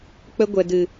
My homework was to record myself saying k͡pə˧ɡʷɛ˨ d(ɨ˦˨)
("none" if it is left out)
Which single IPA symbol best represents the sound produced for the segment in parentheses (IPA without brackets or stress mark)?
ɨ˨